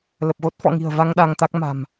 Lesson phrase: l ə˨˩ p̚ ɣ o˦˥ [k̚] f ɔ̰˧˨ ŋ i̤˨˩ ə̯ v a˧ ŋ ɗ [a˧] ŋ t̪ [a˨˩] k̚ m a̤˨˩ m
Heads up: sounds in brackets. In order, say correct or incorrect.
incorrect: t̚, correct, incorrect: a˦˥

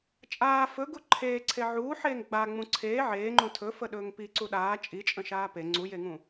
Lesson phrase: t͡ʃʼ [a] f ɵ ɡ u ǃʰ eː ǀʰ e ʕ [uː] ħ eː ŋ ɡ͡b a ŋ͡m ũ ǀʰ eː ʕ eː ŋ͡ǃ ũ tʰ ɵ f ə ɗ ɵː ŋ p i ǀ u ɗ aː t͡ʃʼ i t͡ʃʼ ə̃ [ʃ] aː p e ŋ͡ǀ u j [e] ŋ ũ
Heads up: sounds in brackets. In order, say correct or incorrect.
incorrect: aː, correct, correct, correct

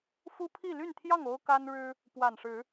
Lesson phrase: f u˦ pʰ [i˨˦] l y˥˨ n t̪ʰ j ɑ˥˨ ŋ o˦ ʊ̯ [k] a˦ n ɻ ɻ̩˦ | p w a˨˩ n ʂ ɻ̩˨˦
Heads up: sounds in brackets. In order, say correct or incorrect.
incorrect: i˥˨, correct

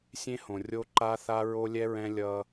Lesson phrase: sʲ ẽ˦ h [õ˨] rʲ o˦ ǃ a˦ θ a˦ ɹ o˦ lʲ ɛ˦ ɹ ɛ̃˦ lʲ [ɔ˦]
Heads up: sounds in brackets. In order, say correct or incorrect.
correct, incorrect: ʌ˦

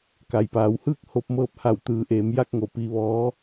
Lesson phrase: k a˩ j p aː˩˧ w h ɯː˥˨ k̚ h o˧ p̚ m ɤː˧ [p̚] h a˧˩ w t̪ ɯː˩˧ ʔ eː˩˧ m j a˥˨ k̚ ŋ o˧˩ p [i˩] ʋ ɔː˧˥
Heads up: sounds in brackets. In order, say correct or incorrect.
correct, incorrect: i˧

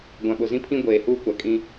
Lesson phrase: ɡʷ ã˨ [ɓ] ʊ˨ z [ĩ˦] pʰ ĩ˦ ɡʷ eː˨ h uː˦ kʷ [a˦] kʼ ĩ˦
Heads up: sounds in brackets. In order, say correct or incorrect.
correct, correct, incorrect: a˨

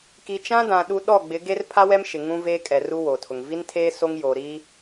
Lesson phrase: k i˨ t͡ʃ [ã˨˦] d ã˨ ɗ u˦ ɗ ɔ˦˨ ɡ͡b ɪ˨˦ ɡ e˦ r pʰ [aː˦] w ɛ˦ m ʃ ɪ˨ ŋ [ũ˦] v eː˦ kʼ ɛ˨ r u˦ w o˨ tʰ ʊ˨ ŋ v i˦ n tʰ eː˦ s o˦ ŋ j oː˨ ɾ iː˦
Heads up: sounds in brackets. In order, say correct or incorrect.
incorrect: ã˦, incorrect: a˦, correct

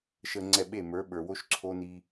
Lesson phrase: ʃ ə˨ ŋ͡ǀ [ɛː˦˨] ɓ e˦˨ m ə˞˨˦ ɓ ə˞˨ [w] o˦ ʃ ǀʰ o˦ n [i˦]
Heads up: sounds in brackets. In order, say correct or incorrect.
incorrect: ɛ˦˨, correct, correct

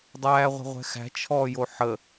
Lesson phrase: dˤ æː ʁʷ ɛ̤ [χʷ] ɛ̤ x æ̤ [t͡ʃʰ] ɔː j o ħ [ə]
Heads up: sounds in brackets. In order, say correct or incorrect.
incorrect: ʁʷ, correct, correct

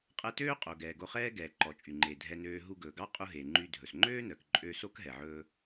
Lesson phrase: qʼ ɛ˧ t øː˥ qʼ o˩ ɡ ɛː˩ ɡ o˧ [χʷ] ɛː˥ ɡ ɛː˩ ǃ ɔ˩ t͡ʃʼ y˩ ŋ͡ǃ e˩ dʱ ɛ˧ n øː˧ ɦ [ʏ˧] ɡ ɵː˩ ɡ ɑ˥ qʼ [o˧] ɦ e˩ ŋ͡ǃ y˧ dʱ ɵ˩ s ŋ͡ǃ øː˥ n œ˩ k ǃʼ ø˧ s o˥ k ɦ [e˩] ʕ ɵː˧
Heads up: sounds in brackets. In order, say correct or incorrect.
incorrect: χ, incorrect: u˧, incorrect: u˧, incorrect: ɛ˩

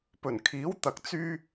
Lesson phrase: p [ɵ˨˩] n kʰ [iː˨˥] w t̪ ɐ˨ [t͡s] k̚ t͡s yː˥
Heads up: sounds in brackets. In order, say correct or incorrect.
correct, correct, incorrect: none

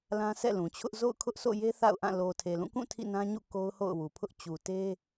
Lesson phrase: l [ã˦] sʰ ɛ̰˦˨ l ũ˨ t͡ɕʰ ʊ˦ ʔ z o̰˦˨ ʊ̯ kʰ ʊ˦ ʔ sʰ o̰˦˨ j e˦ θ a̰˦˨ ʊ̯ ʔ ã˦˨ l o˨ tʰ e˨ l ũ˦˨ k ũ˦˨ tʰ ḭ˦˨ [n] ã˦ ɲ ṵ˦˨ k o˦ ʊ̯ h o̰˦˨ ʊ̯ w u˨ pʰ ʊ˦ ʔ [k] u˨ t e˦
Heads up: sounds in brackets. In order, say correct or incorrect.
correct, correct, incorrect: t͡ɕ

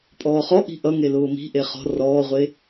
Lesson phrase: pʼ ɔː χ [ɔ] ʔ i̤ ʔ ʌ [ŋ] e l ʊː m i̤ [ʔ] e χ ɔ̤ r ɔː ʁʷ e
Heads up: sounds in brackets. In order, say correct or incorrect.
correct, correct, correct

